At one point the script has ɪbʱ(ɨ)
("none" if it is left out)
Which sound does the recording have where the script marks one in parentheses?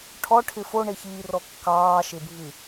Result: ɨ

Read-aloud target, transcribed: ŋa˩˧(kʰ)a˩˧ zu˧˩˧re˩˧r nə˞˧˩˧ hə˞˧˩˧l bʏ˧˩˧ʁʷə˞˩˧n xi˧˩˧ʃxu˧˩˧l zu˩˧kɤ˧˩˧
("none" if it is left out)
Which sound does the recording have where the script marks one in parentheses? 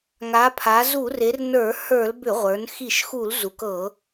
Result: pʰ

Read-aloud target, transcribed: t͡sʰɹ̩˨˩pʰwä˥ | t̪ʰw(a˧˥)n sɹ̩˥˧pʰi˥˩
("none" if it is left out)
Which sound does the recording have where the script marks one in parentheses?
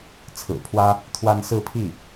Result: a˥˧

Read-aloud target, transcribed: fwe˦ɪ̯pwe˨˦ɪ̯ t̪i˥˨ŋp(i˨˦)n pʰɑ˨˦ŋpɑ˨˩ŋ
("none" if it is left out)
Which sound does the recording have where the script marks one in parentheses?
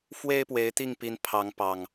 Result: i˨˦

